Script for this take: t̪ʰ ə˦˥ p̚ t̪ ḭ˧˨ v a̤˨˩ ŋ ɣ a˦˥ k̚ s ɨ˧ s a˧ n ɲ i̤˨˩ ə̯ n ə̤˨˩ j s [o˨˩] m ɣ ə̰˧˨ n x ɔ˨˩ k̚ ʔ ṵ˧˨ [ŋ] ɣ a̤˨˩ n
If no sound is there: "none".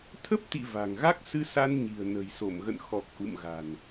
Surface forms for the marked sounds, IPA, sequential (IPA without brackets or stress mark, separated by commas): o˧˩, m